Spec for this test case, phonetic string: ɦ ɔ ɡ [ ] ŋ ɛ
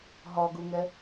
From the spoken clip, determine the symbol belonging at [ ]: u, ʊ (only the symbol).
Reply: u